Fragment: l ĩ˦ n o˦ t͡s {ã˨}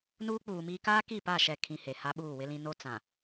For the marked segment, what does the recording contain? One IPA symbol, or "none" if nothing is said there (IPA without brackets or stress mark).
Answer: ã˨